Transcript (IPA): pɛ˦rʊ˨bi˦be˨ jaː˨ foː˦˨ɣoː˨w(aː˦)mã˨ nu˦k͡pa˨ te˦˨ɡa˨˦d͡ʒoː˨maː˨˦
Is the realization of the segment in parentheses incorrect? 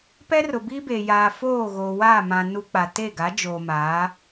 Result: yes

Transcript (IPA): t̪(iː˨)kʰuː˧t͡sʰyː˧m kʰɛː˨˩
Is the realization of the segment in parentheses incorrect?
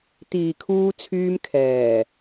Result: no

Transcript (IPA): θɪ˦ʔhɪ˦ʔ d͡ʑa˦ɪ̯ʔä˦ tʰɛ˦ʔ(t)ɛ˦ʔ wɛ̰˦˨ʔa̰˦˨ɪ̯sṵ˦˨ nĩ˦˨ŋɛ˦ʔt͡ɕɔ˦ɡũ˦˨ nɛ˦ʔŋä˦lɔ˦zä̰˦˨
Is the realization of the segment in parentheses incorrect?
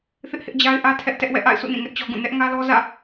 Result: no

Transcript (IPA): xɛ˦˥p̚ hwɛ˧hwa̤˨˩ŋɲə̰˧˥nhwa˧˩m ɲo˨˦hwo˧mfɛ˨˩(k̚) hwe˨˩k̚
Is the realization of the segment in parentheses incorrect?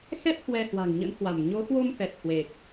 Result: yes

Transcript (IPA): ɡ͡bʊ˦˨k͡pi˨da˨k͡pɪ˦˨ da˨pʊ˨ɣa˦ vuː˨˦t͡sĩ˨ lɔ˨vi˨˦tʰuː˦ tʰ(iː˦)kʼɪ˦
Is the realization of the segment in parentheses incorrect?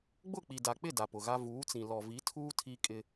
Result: yes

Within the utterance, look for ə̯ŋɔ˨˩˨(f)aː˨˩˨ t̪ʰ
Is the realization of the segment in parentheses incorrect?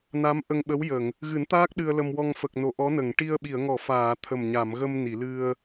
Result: no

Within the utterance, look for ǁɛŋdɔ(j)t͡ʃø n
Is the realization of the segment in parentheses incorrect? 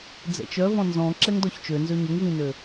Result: yes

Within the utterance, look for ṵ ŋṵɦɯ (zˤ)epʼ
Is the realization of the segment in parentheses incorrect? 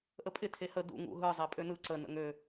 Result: no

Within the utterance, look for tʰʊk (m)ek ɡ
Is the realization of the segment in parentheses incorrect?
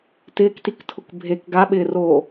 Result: yes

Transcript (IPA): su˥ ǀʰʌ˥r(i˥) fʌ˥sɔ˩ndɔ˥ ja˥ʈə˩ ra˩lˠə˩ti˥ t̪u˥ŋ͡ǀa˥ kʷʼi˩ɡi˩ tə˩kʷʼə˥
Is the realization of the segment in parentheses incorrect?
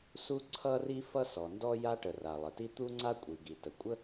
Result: no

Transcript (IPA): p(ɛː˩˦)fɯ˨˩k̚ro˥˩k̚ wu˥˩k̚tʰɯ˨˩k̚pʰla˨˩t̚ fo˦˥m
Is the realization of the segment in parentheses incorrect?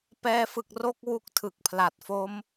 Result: yes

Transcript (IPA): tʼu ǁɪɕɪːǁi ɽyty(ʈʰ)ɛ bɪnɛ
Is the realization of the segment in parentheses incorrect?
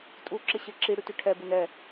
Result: no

